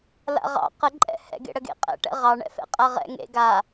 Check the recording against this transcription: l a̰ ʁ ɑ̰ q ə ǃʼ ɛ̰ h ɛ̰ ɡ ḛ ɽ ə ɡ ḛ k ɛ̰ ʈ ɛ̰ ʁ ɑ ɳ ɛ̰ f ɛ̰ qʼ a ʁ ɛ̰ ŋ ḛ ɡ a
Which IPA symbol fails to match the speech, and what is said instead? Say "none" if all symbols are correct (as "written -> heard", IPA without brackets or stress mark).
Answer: k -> qʼ